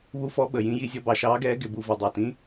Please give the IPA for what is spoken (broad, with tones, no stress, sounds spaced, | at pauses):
β u˨˦ f ɔ˨˦ ɓ ə˨˩ j ĩ˨˦ j i˨˦ zʲ ɔ˨˦ b ɑ˨˩ ʃ ɑː˨˦ ɡ ɛː˨˦ ɡ ɪ˨˩ b u˨˩ v ʌ˨˩ dˤ ɑ˨˩ t ĩ˨˦